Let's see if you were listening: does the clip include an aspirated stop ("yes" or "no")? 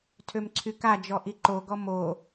yes